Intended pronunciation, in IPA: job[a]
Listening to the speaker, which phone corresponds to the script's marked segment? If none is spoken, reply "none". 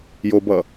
ʌ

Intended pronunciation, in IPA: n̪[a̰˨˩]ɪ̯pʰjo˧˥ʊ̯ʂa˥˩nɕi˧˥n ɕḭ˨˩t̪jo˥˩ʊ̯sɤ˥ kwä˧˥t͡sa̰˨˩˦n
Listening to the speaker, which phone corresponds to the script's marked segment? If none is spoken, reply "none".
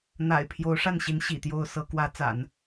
a̰˨˩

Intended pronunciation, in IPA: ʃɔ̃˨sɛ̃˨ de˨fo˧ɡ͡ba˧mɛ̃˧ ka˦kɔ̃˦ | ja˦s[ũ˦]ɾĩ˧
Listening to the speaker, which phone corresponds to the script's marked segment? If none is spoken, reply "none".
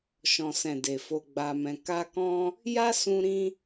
ũ˧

